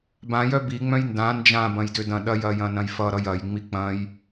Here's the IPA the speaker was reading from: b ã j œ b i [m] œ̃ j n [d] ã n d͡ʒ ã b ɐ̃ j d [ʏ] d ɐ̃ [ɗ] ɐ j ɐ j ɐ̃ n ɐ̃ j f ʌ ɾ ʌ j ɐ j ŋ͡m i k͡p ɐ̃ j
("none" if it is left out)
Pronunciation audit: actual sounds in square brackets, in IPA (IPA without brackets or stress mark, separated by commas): ŋ͡m, d, ʏ, ɗ